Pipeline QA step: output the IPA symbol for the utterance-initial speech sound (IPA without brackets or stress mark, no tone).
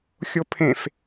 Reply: xʲ